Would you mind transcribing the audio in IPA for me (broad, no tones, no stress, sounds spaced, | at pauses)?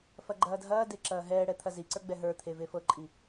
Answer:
f ɐ ɡ͡ǃ ɐː dʱ ɐː d e ǁ ɐː ɦ ɛː ɽ ɛ t̪ʰ ɐ z i ǀ ə˞ ɡ͡b ɛ ɦ ə˞ t̪ʰ e v e f ɤ ǃʼ i